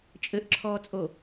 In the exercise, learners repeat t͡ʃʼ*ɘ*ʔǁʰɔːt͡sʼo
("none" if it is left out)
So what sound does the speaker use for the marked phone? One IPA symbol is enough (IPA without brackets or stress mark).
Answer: ɘ